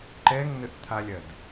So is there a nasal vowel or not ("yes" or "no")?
no